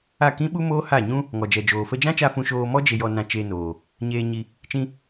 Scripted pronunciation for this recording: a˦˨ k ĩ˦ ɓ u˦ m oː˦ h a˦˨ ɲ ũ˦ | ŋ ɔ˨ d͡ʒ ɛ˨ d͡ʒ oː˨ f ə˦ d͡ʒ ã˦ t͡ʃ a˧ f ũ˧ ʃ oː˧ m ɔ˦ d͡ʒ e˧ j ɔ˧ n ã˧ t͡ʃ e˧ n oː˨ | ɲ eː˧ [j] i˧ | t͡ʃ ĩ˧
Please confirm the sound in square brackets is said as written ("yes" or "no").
no